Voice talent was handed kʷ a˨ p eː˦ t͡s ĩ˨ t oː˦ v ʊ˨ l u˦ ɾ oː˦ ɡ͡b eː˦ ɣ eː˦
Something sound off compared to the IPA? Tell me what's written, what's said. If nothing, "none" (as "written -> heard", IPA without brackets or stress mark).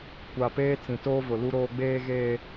none